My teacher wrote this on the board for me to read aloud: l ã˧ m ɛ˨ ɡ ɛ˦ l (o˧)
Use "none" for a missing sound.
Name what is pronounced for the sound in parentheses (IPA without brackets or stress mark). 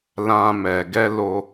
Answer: o˧